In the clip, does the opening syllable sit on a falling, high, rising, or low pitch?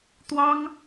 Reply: high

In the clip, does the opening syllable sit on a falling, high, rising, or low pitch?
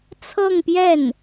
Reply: falling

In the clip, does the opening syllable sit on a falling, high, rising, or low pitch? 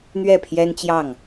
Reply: falling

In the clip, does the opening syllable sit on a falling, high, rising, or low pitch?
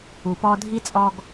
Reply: low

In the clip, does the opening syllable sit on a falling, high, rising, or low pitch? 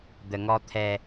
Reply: low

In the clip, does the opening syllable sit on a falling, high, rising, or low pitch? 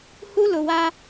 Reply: high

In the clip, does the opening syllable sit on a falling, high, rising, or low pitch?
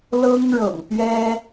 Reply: high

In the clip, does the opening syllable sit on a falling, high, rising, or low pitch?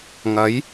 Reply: rising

